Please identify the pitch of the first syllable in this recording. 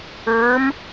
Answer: rising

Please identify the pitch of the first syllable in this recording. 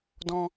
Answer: high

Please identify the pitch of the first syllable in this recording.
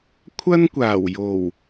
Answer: high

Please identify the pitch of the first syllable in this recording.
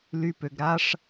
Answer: low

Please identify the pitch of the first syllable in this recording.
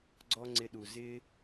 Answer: high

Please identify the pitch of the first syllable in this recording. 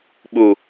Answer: low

